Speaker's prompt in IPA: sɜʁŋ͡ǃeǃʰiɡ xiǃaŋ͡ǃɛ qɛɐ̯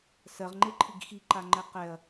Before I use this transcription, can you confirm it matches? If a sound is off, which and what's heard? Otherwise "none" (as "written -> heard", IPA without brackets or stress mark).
none